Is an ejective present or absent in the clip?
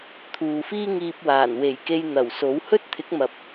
absent